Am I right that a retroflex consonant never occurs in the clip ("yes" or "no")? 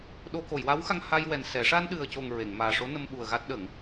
no